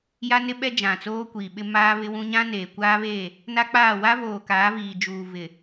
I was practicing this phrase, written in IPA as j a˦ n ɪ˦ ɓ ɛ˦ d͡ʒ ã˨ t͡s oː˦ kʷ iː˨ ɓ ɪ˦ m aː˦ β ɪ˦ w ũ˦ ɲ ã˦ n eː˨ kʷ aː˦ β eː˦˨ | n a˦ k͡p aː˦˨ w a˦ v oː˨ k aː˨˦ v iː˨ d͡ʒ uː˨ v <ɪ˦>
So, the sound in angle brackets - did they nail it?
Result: no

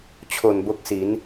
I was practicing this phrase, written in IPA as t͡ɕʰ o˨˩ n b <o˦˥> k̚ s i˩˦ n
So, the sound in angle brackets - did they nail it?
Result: yes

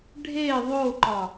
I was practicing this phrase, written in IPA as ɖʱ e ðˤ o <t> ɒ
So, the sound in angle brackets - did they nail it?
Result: no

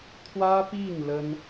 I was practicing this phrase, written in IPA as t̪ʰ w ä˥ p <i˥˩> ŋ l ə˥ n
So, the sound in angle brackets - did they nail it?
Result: yes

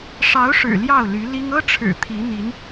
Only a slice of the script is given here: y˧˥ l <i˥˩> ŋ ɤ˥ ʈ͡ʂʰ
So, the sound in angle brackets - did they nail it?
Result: no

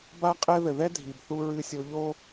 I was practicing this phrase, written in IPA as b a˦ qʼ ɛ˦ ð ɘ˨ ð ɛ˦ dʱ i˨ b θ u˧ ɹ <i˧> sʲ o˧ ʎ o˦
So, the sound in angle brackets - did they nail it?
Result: no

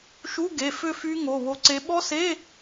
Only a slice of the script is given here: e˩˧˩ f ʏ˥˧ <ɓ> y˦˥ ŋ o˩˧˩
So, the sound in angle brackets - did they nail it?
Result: no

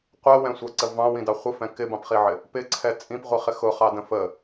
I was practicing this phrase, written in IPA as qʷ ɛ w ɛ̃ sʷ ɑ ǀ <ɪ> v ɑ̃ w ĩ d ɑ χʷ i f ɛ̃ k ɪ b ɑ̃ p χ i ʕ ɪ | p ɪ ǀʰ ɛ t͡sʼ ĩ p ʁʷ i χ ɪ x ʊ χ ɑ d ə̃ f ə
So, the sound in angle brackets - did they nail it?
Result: no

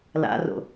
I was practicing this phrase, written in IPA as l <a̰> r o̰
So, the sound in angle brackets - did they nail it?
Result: yes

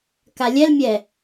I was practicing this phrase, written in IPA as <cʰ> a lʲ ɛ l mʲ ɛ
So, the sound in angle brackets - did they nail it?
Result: no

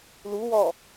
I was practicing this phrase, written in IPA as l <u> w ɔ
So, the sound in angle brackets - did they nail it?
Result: yes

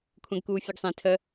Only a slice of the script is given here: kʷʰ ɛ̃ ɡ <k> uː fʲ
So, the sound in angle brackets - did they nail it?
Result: yes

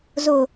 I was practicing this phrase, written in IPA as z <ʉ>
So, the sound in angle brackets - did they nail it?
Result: no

